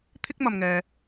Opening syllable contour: high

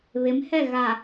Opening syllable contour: rising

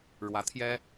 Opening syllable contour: rising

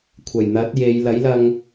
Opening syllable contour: low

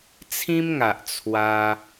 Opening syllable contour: high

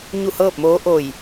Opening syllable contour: falling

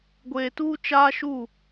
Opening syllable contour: low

